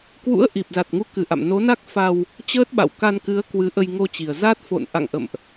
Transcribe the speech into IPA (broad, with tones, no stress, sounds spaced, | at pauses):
k w ṵ˧˥ ə̯ ʔ i˨˩ p̚ z a˨˩ t̚ ŋ u˨˦ k ɨ˧˩ ʔ a̰˧˨ m n o˨˦ n a˦˥ k̚ f a˧ w | t͡ɕ əː˦˥ t̚ ɓ a̰˧˨ w k a˧ n k ɨ˨˦ ə̯ k w ɨ˨˦ ʔ ə˧ j ŋ o˧ t͡ɕ i˨˩ ə̯ z a˦˥ t̚ f o̰˧˨ n ʔ a̰˧˨ ŋ ʔ ə̰˧˨ m ʔ